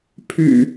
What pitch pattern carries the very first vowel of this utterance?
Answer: low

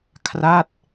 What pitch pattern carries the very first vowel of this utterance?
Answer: falling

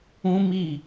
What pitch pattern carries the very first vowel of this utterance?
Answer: high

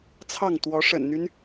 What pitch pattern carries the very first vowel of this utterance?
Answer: falling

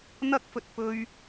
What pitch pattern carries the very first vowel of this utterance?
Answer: high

